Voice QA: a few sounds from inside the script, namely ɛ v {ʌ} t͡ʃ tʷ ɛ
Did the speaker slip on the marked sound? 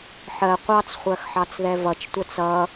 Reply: no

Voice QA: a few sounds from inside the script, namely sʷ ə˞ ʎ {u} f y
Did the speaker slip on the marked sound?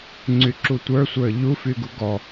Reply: no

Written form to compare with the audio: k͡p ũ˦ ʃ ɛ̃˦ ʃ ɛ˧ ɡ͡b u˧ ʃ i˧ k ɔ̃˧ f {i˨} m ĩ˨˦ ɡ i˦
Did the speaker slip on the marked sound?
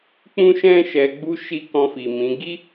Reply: no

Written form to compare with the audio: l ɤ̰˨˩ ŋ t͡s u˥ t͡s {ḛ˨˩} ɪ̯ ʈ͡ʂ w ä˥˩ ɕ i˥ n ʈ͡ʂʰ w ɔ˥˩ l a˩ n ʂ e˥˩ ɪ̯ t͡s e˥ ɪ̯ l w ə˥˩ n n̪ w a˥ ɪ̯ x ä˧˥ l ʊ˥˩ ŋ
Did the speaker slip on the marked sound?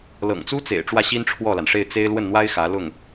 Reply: no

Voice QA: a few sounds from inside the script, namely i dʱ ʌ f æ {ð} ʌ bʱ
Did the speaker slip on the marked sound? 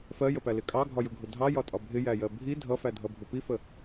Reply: yes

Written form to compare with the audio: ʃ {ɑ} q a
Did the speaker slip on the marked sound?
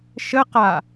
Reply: yes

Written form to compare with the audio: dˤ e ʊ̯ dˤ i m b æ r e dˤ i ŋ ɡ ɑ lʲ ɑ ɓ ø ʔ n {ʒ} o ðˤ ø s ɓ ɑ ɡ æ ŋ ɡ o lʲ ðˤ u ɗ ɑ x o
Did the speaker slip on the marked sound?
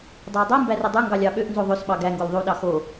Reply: yes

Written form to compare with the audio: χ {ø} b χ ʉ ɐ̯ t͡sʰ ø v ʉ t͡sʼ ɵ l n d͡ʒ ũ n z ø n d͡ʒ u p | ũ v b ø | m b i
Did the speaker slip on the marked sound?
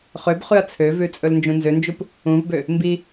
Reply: no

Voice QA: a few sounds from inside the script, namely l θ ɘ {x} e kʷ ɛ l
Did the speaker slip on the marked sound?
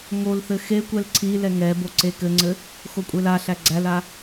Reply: no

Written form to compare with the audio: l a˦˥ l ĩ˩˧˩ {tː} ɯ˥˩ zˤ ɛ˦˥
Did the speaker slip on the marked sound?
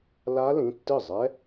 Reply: no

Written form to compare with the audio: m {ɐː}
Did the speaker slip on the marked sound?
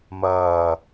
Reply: no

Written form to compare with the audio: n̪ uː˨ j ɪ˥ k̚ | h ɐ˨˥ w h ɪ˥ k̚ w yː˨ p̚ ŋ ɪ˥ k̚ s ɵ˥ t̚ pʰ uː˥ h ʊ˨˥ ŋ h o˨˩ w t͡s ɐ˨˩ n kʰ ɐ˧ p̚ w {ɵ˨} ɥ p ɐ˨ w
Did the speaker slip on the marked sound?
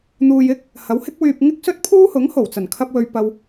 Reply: no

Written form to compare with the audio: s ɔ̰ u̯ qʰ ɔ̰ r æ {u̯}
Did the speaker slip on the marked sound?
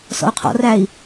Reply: yes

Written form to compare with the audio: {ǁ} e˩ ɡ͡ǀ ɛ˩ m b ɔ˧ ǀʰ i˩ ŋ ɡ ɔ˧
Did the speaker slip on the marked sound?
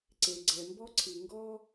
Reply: yes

